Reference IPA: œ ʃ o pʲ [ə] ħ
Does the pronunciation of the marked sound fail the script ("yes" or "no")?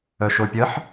no